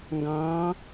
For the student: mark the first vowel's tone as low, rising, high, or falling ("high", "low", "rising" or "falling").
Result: rising